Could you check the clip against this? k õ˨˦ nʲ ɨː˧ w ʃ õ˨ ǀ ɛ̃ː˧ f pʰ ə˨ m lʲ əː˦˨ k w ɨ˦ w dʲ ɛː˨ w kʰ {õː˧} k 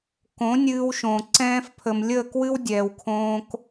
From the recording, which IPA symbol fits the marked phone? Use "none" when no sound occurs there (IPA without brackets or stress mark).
õː˧